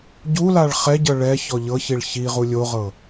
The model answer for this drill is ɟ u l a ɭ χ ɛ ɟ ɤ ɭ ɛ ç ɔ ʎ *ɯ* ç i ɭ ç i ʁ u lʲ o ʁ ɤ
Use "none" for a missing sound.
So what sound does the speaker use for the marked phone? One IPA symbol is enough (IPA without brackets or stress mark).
ɤ